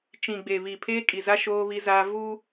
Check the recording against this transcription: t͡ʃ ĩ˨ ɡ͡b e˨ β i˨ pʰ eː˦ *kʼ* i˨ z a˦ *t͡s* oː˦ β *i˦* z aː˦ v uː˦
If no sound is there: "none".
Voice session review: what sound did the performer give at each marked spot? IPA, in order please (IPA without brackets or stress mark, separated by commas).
kʼ, ʃ, i˦